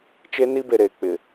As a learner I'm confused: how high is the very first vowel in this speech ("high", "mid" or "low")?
mid